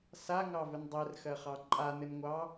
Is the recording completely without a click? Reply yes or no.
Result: no